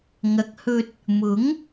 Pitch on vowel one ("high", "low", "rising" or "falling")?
rising